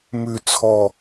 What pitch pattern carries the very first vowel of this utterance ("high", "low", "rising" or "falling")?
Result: low